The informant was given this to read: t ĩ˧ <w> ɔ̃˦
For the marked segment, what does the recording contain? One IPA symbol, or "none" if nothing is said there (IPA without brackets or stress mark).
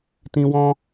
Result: w